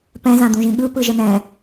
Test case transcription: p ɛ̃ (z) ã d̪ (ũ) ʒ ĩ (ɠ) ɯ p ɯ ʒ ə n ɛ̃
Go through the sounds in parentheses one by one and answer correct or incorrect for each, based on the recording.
correct, correct, correct

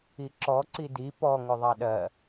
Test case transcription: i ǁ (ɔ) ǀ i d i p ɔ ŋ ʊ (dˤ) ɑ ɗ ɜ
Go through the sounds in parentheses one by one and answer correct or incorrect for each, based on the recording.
correct, incorrect: ðˤ

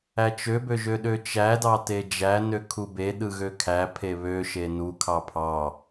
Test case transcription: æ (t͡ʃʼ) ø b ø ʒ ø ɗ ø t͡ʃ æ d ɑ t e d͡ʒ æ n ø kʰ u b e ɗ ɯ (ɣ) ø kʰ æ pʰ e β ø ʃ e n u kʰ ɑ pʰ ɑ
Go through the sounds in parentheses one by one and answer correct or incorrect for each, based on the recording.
incorrect: t͡ʃ, correct

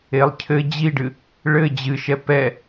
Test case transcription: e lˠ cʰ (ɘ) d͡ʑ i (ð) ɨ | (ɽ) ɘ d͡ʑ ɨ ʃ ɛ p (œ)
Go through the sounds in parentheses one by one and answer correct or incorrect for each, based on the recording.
correct, incorrect: ɖ, incorrect: ɭ, incorrect: ɛ

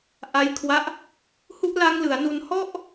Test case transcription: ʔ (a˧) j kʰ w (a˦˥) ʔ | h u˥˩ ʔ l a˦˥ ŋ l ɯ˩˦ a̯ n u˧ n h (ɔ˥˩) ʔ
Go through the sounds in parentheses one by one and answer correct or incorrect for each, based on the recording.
incorrect: a˦˥, correct, correct

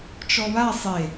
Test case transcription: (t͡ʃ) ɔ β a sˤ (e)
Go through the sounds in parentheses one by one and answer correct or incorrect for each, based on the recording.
correct, correct

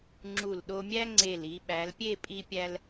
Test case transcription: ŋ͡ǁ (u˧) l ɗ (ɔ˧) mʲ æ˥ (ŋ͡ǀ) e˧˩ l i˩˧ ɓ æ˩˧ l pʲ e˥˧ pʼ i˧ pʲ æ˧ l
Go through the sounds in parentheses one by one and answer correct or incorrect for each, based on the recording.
incorrect: u˧˩, incorrect: o˧, correct

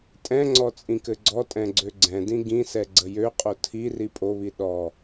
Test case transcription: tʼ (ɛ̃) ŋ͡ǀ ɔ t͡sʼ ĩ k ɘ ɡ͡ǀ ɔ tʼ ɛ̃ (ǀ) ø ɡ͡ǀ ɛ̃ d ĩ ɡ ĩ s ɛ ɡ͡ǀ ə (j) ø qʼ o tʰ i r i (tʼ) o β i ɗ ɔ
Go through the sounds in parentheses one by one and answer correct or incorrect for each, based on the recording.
correct, incorrect: ɡ͡ǀ, correct, incorrect: pʼ

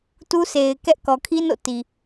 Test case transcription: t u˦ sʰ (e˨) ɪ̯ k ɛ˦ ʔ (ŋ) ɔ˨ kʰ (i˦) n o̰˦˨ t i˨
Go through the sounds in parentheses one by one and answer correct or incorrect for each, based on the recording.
correct, incorrect: k, correct

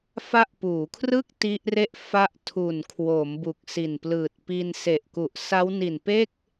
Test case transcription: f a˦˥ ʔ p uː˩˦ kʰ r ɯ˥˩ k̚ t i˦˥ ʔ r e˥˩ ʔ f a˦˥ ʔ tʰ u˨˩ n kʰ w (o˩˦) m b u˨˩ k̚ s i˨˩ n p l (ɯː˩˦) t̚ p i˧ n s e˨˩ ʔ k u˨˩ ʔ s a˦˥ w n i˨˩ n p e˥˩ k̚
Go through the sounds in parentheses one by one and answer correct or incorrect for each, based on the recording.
correct, incorrect: ɯː˨˩

